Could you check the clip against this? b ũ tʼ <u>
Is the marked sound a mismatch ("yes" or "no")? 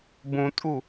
no